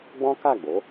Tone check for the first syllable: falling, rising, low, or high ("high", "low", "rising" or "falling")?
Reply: high